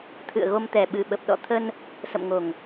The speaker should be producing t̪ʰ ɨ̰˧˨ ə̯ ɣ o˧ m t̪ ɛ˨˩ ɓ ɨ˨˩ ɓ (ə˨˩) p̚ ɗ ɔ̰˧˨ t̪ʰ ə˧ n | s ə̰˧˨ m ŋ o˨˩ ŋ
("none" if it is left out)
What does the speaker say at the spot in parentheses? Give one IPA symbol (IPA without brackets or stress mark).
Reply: ə˨˩